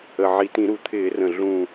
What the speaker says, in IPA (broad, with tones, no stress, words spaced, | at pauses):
ə˨˩ʕi˨˩tĩ˧˩˧ ɾu˨˩ t̪ʰɪː˧˩˧rə̃˨˩ ɮũ˨˩